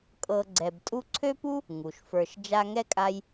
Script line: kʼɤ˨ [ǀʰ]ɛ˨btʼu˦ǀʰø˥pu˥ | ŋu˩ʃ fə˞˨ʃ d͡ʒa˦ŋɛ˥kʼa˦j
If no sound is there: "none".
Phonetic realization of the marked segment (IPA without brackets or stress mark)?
ɡ͡ǀ